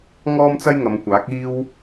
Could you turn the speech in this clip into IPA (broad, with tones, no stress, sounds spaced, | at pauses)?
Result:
ŋ ɔː˥ m t͡s ɐ˥ j ŋ ɐ˨˧ m kʷ aː˨˥ k̚ iː˥ w